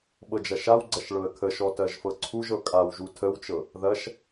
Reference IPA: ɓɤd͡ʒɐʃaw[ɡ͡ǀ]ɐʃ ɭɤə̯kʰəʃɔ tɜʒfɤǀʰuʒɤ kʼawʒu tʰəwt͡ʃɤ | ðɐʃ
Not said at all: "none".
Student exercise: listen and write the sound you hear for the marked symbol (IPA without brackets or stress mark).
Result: ɡ͡ǀ